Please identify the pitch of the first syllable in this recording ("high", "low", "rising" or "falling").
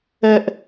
high